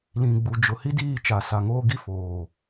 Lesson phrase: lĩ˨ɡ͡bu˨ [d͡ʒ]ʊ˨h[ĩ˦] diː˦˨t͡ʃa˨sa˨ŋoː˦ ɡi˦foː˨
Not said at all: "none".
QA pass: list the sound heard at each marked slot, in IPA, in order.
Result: d͡ʒ, i˦

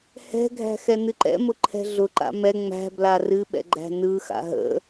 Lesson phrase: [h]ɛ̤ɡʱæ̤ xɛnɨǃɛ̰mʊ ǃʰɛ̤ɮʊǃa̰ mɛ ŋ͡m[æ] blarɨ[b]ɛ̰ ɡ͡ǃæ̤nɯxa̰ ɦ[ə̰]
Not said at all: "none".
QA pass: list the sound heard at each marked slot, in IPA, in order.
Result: h, æ̤, ɓ, ə̰

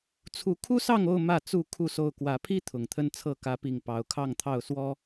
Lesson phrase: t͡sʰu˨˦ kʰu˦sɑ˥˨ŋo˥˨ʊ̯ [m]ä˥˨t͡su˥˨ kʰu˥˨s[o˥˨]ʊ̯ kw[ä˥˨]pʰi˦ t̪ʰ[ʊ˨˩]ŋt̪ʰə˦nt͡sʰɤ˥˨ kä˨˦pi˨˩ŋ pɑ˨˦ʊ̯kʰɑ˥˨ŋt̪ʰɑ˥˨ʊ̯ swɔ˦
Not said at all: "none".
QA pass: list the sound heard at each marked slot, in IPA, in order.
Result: m, o˥˨, ä˨˦, ʊ˨˩

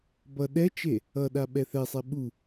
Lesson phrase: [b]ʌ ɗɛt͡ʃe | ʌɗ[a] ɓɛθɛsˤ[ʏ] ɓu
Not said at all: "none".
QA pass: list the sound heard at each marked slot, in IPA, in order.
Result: b, a, ɛ

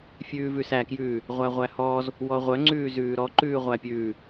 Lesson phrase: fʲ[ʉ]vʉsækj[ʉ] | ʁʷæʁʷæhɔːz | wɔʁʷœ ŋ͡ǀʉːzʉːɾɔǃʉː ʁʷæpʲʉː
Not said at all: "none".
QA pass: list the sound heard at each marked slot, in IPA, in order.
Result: ʉː, ʉː

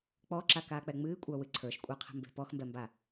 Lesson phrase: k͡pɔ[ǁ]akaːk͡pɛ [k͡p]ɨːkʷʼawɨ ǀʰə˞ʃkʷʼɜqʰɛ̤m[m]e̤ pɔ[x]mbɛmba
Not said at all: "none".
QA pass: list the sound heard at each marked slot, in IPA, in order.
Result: ǁ, ŋ͡m, b, x

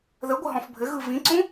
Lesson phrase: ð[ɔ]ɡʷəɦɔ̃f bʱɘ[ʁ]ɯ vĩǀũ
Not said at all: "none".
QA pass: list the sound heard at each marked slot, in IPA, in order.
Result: ə, ɣ

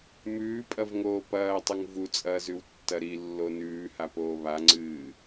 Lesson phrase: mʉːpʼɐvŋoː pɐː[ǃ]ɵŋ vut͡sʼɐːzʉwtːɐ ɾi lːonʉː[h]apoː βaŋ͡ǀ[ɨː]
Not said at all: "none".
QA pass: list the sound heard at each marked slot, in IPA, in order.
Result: tˤ, h, ɨː

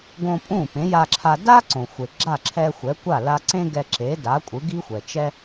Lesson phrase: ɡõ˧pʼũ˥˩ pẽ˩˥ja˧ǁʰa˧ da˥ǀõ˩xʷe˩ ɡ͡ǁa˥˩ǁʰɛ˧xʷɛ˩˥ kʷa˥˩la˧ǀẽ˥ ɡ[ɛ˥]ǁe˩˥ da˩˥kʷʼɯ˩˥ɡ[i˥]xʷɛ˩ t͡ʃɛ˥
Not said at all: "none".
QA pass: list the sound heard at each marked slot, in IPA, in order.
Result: ɛ˧, i˥

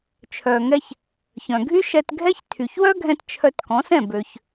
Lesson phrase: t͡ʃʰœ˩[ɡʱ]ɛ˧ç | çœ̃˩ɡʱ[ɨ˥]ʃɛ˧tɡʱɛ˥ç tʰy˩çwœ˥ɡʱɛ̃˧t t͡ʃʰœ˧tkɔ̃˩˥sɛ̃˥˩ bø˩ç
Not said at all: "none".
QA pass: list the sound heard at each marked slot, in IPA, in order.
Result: ŋ, y˥

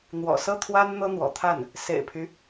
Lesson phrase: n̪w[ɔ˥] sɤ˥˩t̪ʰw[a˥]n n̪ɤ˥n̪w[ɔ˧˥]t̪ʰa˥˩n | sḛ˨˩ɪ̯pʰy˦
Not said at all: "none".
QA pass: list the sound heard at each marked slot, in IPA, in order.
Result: ɔ̰˨˩, a˥, ɔ̰˨˩

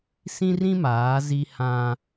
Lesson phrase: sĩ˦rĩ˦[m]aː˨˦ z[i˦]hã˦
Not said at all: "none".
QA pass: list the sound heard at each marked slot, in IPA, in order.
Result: m, i˦

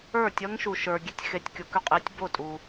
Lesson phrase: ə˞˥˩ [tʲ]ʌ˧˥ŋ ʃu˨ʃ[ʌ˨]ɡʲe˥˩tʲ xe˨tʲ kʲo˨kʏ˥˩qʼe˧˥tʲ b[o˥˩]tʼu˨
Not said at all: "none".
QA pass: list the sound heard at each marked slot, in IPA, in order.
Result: tʲ, ə˞˨, o˥˩

